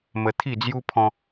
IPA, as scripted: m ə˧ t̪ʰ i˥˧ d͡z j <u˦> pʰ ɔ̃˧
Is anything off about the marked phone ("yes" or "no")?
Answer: no